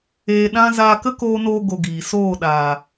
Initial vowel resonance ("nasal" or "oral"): oral